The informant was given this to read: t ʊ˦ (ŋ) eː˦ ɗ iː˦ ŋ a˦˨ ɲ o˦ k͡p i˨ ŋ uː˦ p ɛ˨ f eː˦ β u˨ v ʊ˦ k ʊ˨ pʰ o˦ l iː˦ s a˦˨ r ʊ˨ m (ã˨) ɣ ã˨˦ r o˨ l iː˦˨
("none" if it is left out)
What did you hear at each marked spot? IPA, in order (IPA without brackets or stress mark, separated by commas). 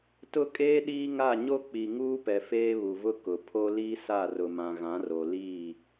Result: kʼ, ã˨